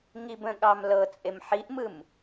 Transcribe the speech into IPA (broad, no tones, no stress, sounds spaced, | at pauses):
ŋ i b ə̃ ɠ ɑ m l ɤ t͡sʼ e m ħ i ʔ m ɯ m